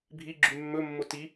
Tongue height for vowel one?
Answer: high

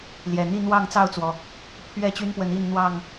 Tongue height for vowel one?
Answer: mid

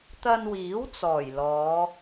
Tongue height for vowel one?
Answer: low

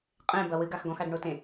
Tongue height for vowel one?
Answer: mid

